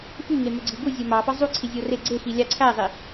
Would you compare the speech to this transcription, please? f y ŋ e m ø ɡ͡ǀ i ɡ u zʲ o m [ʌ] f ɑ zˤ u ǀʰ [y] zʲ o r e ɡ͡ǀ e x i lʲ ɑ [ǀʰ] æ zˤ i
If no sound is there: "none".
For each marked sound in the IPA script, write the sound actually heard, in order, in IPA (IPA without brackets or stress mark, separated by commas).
ɑ, i, ǀʰ